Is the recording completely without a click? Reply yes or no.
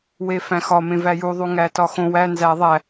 yes